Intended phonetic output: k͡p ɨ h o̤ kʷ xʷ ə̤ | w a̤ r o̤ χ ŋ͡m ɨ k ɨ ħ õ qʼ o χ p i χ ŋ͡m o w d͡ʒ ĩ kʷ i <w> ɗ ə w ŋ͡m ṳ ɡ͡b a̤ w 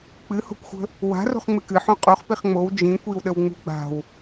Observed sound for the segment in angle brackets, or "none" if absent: w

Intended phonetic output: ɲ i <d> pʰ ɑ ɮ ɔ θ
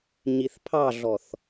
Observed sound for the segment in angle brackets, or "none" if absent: θ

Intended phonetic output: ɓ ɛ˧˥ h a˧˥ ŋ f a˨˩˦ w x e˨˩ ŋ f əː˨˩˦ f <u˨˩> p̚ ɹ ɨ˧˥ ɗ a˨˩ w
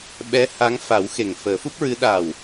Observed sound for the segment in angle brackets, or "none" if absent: u˦˥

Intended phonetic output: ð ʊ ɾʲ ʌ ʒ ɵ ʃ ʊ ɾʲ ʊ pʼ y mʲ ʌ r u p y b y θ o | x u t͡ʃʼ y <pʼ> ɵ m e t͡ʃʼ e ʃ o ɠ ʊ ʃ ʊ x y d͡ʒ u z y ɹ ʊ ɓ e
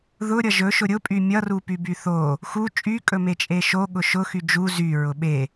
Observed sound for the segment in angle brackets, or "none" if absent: kʼ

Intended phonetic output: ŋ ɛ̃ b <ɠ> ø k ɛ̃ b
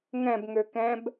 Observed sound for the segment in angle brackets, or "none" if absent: ŋ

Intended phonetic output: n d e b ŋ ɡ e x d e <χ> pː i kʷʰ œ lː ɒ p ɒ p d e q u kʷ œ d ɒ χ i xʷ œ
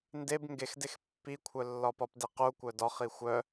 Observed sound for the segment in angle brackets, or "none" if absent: x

